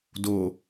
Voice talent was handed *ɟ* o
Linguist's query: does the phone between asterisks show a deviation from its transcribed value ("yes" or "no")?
yes